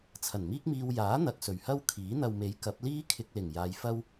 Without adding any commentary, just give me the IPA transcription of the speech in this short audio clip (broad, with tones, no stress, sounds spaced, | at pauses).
t͡sʰ ɐ˨˩ n m iː˥ k̚ m iː˧ w j aː˨˥ n̪ ɐ˨ k̚ s ɵ˨˩ ɥ h ɐ˥ w kʰ iː˨˥ n̪ ɐ˨ w m e˨˥ j k ɐ˨˥ p̚ l iː˥ kʰ ɪ˧ k̚ l ɪ˨˩ ŋ j aː˨˧ j f ɐ˥ w